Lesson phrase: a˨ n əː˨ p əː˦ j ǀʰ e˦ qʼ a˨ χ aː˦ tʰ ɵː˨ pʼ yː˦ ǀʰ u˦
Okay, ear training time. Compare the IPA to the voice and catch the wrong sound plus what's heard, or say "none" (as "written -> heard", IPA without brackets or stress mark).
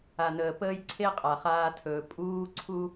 yː˦ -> uː˦